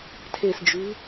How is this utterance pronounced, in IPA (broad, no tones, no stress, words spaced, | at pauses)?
tʰesd͡ʒʉ